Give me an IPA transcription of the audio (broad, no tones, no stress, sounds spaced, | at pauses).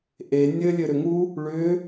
ʔ e nʲ ɘ lʲ ɘ ɾ ʏ ŋ u | ɭ ʏ